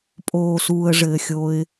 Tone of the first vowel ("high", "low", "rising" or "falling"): low